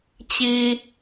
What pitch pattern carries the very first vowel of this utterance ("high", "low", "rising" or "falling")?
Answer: high